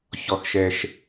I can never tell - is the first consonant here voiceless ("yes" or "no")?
yes